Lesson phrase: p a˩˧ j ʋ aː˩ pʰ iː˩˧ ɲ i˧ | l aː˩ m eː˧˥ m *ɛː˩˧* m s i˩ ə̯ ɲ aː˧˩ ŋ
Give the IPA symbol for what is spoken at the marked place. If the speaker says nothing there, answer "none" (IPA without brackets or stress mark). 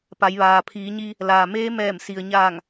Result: ɛː˧˩